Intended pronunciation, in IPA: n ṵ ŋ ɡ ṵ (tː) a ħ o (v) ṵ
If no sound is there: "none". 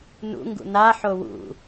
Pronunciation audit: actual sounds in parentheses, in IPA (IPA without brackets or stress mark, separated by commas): n, w